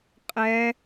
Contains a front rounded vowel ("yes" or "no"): no